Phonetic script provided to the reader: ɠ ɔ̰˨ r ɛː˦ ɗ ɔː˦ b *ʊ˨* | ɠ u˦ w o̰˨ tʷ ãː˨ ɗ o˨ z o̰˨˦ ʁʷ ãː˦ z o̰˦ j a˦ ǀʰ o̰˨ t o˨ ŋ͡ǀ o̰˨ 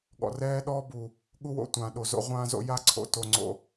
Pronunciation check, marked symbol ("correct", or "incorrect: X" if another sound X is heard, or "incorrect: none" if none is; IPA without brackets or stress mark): incorrect: u˨